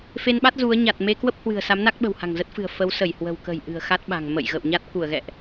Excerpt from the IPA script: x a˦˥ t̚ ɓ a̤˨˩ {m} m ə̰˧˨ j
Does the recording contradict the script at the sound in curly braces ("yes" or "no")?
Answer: yes